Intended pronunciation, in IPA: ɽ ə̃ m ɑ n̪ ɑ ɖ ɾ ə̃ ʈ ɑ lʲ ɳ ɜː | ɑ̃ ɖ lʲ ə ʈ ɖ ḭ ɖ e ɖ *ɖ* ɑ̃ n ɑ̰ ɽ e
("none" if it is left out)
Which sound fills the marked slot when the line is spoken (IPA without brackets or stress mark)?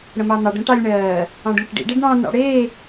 ɳ